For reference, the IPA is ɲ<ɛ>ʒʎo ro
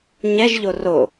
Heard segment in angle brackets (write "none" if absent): ɛ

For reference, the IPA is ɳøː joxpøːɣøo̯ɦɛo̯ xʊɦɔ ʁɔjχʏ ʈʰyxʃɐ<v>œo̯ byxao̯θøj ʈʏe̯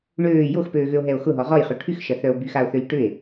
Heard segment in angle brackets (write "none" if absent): θ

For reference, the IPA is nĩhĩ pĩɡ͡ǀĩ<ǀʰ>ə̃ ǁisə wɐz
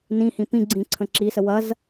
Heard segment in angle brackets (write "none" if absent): ǀʰ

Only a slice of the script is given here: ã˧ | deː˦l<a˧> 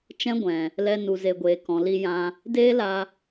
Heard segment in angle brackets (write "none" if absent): a˧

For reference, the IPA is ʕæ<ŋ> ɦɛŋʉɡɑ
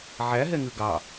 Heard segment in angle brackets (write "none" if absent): none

